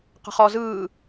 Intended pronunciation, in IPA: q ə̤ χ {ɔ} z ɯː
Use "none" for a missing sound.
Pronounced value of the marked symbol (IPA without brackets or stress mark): ɔ